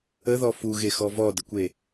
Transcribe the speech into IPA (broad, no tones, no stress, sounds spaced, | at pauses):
ə ð ɔ f u ɣ e x ɔ v ɔ d ə kʷ e